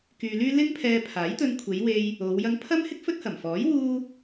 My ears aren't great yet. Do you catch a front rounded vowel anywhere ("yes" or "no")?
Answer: yes